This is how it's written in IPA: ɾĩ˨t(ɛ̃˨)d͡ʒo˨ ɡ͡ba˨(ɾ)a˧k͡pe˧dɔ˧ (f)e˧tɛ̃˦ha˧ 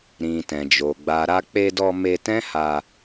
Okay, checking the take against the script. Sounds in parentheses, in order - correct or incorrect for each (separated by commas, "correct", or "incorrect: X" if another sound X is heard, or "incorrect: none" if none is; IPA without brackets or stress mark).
correct, correct, incorrect: m